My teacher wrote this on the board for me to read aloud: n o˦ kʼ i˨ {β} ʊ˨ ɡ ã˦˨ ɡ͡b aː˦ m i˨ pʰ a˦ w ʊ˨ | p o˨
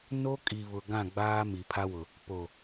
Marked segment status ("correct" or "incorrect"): correct